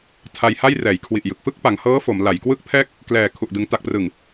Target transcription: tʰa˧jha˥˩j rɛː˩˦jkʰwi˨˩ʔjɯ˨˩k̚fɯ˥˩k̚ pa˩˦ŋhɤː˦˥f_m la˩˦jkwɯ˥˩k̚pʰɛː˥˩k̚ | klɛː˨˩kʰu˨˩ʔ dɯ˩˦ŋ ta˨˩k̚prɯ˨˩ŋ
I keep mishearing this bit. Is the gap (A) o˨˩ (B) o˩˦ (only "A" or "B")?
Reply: B